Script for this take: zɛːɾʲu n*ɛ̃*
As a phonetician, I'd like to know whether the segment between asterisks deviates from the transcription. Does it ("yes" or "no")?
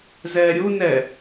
yes